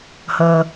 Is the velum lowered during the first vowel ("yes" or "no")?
no